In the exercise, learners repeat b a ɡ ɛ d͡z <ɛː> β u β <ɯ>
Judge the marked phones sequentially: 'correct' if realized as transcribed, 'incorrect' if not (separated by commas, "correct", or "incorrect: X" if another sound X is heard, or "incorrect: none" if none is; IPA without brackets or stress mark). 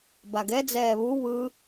correct, correct